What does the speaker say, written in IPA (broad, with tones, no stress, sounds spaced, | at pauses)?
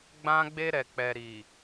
ɡ͡b ã˦ ɡ͡b e˧ ɾ ɛ˨ k͡p ɛ˨ ɾ i˨